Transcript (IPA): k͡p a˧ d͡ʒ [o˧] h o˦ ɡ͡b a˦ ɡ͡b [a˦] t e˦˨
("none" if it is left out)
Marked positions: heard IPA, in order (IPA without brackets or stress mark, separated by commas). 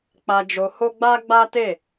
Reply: o˧, a˦